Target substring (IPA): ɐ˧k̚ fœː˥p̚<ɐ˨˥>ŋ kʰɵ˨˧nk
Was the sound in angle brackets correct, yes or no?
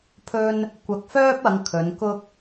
no